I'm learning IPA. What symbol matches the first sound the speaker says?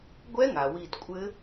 ɡʷ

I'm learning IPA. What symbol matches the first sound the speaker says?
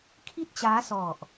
kʰ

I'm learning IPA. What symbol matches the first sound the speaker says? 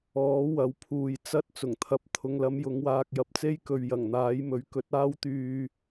ɔː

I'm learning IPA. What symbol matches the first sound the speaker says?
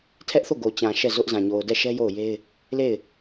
tʰ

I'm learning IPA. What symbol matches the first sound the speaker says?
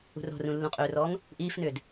ṳ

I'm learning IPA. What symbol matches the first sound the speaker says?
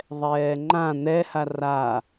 ðˤ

